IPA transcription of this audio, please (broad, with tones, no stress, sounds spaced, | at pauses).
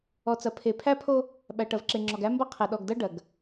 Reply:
ɔ˨ t͡s ɐ˨ pʰ e˨ pʰ æ˦ pʰ o˦ | ɓ æ˨ ʈ ɐ˨ v ǁ e˨ ŋ͡ǁ ɔ˨ ɡ æ˦ m b ɐ˦ qʰ e˨ ɗ ɔ˨ ɡ d ɐ˦ ɖ ɐ˨ ɡ